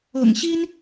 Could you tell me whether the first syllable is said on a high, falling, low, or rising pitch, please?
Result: low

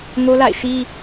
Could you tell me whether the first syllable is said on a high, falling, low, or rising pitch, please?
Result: high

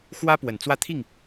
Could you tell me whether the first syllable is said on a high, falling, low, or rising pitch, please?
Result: high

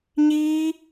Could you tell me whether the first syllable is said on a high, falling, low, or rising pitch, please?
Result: high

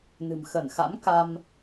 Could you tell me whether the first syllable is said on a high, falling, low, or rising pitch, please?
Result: low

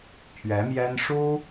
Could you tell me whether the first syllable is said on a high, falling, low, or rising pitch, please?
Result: rising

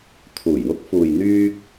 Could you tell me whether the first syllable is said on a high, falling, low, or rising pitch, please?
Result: low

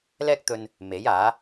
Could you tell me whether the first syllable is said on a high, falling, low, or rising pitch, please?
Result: high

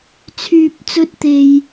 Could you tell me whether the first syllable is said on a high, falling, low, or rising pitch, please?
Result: low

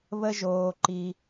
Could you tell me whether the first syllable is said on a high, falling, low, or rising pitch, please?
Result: low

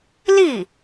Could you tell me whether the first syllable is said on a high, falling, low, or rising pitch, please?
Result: falling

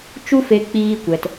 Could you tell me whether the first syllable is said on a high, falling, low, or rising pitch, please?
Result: high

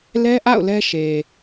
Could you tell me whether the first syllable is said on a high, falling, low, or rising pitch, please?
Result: high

